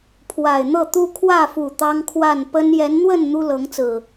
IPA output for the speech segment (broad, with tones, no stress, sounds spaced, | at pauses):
pʰ w a˨˩ ɪ̯ n̪ ɤ˥˨ t̪ u˦ kʰ w ä˥˨ f u˨˩ t̪ ɑ˦ ŋ kʰ w a˥˨ n p ə˦ n j ɛ˨˦ n n̪ w ə˥˨ n n̪ u˦ l ɤ˨˦ ŋ t͡s ɹ̩˨˩